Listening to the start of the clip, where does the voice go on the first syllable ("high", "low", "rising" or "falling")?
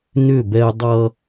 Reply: falling